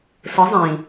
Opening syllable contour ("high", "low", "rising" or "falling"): rising